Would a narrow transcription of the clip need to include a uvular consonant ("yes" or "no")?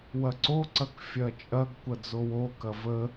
no